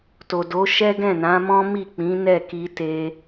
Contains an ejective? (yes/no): no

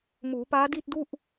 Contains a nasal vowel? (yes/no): no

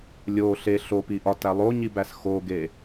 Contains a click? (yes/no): no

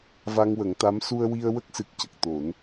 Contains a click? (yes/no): no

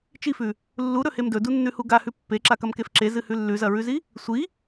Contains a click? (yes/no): yes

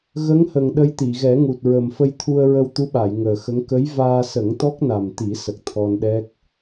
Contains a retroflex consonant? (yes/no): no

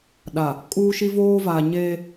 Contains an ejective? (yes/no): yes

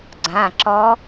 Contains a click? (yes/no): yes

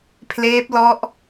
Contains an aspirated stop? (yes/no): yes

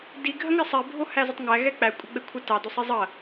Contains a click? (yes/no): no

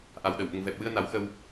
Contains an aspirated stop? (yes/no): no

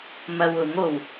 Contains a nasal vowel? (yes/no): no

